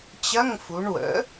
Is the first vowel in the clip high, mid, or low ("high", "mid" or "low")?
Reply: low